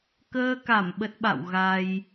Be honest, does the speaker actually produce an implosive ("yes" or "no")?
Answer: yes